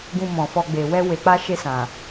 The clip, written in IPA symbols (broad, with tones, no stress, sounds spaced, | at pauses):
ɡ ũ˧ m ɔ̃˨ f ɔ˧ ɡ͡b e˨ w ɛ˧ w e˨ k͡p a˧ ʃ e˧ s ã˨